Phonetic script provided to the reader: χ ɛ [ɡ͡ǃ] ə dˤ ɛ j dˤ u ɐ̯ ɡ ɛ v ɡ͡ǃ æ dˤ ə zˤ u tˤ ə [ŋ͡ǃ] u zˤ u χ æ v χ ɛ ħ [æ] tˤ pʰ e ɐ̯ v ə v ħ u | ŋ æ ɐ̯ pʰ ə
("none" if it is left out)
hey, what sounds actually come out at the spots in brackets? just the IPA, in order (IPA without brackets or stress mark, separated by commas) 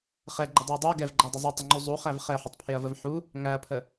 ɡ͡ǃ, ŋ͡ǃ, ə